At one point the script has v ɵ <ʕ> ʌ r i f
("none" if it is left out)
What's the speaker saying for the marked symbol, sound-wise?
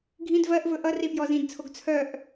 ʔ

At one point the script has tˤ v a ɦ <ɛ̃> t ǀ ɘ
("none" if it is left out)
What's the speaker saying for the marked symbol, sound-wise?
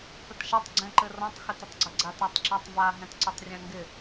ɛ̃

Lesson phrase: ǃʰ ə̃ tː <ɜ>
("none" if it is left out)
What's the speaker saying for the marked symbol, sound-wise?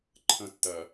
ɜ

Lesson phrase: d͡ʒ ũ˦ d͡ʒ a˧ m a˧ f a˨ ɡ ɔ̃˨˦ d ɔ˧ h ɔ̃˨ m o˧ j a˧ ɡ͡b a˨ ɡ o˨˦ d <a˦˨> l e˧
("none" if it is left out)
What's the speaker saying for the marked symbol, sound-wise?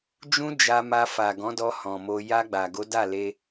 a˦˨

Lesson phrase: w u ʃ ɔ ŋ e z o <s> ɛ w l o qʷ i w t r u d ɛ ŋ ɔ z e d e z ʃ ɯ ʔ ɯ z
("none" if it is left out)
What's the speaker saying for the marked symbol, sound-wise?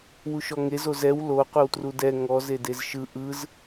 z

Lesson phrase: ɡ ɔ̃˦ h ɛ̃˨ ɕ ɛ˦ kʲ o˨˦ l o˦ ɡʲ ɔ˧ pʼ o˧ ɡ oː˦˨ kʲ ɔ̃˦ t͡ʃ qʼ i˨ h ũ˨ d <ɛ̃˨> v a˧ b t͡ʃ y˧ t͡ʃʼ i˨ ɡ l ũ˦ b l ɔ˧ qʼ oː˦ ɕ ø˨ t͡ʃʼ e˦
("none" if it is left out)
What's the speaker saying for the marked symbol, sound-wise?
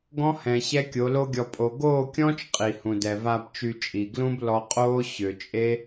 ɛ˨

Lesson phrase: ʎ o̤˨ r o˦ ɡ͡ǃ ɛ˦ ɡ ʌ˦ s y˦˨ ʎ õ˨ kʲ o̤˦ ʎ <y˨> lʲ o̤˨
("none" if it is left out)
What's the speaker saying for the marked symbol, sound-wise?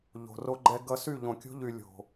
y˨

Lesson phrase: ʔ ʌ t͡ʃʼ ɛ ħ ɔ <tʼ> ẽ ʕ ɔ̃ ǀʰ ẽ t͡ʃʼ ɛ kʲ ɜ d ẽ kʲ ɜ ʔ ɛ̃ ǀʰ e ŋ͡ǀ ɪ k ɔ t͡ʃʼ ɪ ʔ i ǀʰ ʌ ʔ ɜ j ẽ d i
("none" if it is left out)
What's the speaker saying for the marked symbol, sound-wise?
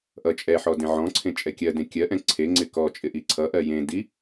d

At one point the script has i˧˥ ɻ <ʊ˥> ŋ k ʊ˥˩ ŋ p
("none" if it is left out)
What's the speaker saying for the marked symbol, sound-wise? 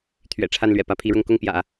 ʊ˥˧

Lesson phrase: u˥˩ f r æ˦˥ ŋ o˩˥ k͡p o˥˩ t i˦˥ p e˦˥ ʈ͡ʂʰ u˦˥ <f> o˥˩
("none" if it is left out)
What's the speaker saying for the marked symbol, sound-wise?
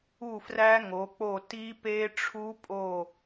pʼ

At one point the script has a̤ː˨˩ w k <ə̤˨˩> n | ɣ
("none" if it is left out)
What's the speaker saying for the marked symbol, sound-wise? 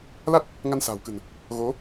ə̤˨˩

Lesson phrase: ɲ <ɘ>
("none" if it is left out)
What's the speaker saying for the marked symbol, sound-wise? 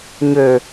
ø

